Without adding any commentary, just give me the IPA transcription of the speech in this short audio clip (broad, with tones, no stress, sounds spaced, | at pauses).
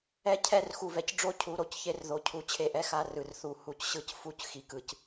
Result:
ɛ˦ cʰ ɛ˦˨ r x u˨ v ɛ˨ c ɖ͡ʐ o˦ cʰ u˨˦ ɾ o˨ c ç e˦ r ð o˨ cʰ u˨ t͡ɕʰ e˦ ʔ ɛ˦ x a˦ r ɯ˨ r θ u˨ h u˨ c ɕ ɯ˦ c f u˦ c x i˨ k ɯ˨ c